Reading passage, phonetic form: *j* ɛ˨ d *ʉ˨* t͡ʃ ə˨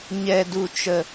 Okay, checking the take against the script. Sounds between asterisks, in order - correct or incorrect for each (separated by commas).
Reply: incorrect, incorrect